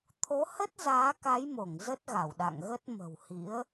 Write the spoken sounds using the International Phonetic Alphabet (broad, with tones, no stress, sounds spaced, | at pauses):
t̪ʰ o˨˦ h ə˦˥ t̚ z aː˨˦ k a˨˦ j m o˧˩ ŋ z ə˦˥ t̚ ɣ a˧˩ w ɗ a̰˧˨ ŋ ɣ ə˦˥ t̚ m ə̤˨˩ w h ḭ˧˥ ə̯